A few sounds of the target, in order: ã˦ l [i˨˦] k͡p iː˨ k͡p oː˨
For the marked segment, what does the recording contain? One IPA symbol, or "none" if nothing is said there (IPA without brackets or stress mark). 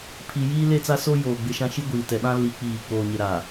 i˨˦